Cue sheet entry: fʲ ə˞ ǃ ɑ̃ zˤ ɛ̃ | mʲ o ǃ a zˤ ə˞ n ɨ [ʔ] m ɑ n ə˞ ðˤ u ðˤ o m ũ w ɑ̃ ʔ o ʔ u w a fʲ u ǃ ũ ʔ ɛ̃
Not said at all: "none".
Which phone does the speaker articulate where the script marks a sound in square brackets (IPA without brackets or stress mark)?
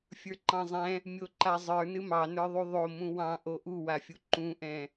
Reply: none